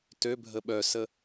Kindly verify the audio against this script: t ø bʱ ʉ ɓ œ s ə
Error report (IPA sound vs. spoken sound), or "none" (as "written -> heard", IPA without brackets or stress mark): ʉ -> ə